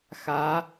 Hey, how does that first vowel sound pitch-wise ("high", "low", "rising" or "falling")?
rising